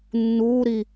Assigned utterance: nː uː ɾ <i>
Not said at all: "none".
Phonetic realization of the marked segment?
i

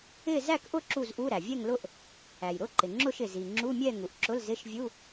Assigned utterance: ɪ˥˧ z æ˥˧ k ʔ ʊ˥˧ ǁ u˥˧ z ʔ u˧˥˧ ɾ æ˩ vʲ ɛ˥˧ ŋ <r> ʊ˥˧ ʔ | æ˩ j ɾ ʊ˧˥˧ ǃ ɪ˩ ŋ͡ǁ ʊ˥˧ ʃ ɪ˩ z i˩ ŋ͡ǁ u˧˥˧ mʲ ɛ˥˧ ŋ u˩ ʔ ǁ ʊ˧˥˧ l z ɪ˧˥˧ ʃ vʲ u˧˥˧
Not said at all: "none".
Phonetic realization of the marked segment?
l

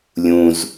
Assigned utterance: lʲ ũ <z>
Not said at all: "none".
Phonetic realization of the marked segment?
z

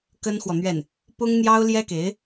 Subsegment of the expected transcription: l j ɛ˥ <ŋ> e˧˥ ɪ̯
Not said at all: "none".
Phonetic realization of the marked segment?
k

